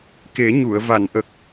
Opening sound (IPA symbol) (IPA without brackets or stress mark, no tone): k